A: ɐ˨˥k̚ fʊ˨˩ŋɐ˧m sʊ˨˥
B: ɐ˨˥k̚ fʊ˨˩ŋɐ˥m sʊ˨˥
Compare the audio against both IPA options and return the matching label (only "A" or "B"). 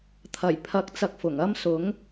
B